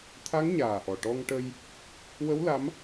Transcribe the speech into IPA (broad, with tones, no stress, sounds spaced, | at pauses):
t̪ʰ a˧˥ ŋ ɲ aː˨˩ ʔ ɔ˨˩ ʈ ɔ˧ ŋ ʈ ə˧ j | w ə˧˥ w l a˧˥ m